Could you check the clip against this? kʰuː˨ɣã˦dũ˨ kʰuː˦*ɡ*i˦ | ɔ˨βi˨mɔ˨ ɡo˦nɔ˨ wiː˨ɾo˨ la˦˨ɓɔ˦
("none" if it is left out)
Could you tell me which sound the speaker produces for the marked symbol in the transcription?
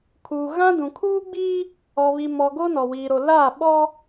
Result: ɡ͡b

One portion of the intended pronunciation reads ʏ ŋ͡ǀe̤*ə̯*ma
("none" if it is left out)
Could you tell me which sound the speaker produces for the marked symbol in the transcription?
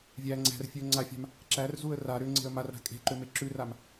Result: ə̯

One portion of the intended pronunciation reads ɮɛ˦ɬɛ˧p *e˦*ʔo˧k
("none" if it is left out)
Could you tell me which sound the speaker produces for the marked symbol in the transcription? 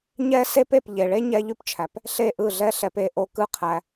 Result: e˦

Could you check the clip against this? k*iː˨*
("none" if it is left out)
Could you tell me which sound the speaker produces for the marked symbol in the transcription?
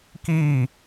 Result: iː˦˨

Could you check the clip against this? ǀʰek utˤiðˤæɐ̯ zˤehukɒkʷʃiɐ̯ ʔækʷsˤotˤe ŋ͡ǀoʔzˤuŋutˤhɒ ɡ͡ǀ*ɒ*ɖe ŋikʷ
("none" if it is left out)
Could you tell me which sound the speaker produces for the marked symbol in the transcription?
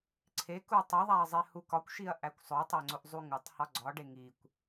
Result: ɒ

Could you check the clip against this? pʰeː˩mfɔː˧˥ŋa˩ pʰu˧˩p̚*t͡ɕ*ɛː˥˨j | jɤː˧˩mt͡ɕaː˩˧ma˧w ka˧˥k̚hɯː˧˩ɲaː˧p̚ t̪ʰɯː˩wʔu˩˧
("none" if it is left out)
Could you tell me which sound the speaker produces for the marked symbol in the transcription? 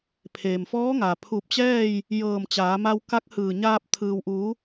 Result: t͡ɕ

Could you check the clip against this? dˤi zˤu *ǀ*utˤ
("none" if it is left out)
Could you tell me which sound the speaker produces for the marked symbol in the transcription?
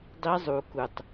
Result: k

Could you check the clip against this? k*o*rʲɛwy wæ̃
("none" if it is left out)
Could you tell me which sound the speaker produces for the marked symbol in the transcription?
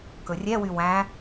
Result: ɵ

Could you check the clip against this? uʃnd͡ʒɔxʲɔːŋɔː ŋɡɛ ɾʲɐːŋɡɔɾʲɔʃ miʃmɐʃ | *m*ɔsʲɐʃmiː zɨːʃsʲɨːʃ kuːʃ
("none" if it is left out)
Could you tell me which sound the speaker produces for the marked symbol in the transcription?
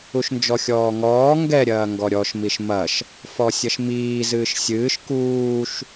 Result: f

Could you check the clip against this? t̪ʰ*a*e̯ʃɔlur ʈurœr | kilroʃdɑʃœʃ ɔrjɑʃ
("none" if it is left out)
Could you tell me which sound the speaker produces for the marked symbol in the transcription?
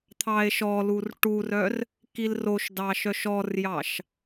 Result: ɑ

